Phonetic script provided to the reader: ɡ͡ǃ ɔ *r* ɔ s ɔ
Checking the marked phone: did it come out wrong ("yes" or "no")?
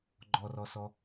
no